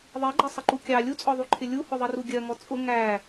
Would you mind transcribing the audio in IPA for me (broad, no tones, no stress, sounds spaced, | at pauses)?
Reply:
ðˤ i ɡ͡ǃ ʌ sˤ ɪ ǃ u kʲ ɑ lʲ u t͡sʼ ɔ ðˤ u ǃʰ ɪ lʲ u h ʊ ðˤ i r u ɡʲ ɜ ŋ ɔ t͡sʼ ʊ ŋ æ